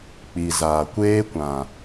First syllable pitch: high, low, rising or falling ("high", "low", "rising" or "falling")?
low